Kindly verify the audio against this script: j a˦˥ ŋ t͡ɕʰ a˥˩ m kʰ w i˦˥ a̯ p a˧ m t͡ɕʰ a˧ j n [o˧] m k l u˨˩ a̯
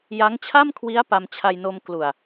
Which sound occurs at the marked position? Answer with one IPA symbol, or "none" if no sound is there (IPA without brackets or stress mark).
o˧